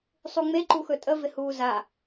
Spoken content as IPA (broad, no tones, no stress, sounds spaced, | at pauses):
sˤ u ŋ͡m e ǃ u x ɵ tʼ ə v ɪ h uː z a